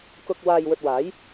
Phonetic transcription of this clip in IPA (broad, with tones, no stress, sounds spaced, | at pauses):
k ʊ˧ k̚ w aː˧ j w ɵ˧ t̚ w aː˨˥ j